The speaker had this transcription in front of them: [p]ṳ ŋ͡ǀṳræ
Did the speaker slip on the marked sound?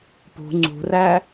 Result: no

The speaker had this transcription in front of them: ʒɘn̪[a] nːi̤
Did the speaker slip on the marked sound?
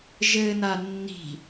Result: no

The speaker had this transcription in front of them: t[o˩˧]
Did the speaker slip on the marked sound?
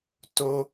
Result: yes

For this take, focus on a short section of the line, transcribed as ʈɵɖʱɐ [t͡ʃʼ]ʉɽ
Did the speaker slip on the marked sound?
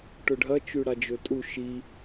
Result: yes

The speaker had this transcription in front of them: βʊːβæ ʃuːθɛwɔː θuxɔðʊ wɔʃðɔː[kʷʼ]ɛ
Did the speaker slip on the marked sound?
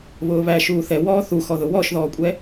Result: no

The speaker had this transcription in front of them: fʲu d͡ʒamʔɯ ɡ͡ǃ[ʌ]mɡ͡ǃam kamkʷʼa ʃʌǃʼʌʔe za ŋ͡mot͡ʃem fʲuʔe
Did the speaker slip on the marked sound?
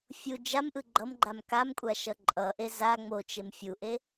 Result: no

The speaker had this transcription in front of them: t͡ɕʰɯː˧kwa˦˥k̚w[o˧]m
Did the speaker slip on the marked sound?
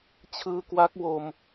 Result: no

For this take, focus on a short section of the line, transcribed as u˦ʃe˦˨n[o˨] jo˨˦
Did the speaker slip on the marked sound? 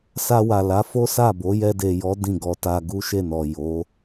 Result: yes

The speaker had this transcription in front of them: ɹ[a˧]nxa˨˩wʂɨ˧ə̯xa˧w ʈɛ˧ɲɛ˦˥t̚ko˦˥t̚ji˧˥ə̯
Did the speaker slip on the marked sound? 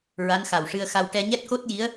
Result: yes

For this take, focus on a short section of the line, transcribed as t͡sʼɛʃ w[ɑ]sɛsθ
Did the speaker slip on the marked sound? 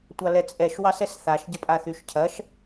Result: no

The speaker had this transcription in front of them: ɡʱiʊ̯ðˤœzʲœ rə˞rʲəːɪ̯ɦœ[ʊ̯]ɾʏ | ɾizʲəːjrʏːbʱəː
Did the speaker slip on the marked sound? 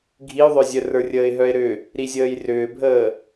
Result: yes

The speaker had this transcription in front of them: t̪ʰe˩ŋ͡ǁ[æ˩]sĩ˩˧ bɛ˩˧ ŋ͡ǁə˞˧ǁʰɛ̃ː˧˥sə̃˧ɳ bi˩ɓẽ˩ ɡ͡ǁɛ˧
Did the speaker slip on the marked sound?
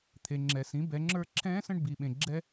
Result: yes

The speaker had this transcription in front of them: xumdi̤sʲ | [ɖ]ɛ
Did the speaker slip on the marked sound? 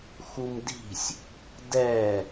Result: yes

